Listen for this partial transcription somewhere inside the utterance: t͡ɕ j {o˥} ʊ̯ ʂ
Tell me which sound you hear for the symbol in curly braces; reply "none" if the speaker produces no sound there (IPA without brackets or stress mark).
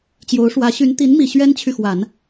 o˧˥